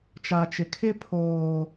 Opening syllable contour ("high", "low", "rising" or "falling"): low